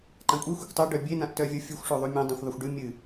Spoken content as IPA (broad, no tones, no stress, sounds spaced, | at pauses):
ǃ ã kʷʼ e xʷ ɨ kʷ tˤ ɵ ɖ œ bʲ e n ã ʔ t œ vʲ o fʲ u xʷ ʂ o ðˤ u mʲ ẽ dˤ œ̃ xʷ ðˤ ɵ xʷ ɖ ɨ mʲ ɨ